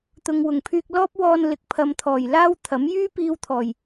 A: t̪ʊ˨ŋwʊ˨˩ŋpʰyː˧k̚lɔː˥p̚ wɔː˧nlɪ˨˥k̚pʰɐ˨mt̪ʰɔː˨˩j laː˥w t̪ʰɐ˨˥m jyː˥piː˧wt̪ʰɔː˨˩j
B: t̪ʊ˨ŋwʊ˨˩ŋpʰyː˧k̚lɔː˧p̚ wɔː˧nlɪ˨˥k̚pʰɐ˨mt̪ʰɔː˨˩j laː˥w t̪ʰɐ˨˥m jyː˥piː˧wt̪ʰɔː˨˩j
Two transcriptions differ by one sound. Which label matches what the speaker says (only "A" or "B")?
A